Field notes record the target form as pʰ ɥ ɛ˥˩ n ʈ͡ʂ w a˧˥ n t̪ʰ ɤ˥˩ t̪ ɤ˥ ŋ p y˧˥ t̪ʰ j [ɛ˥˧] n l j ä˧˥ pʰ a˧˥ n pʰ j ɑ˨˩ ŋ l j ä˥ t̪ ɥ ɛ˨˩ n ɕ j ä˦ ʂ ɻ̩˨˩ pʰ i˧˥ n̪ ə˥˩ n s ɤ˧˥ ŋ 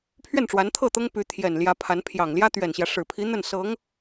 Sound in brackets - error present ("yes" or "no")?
yes